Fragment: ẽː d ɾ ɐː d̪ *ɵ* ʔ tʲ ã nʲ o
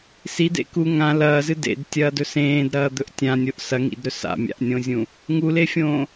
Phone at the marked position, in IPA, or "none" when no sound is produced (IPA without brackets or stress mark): ɵ